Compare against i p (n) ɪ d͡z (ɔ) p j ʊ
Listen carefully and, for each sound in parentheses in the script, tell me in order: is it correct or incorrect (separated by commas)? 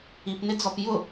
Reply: correct, correct